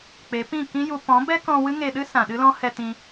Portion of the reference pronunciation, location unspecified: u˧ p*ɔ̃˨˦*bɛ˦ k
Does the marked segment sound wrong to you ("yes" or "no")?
no